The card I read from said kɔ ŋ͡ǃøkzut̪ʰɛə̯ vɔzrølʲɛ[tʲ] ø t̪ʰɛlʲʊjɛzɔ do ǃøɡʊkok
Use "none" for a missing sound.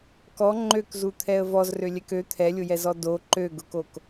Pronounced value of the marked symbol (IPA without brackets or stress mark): k